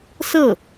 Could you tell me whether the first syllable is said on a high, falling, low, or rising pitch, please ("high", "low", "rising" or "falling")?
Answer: falling